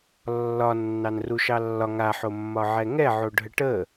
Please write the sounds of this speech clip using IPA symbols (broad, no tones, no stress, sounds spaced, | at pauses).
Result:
lː ɒ nː ɑ n r u ʃ ɑ lː ɒ ŋ a ħ o mː ɒ ʕ ɛ ŋ ɛ ʕ o ɖʱ ə ʈ ə